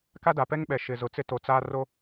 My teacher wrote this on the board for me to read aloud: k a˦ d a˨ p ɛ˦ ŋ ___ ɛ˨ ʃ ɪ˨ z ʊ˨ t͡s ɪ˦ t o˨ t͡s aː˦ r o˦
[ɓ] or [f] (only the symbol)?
ɓ